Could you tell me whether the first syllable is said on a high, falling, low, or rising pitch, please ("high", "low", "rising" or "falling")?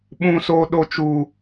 high